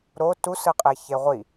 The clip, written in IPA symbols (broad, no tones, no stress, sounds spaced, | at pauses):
ɾ o t u s ɯ qʼ e ç e ʁʷ i